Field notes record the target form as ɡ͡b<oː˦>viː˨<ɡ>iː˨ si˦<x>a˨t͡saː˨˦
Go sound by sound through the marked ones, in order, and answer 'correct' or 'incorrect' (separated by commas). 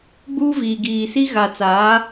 incorrect, correct, incorrect